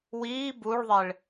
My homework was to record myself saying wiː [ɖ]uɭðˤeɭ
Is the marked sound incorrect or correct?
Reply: incorrect